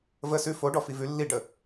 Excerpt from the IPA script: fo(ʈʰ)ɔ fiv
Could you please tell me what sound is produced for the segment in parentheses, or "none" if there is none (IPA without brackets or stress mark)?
ɖ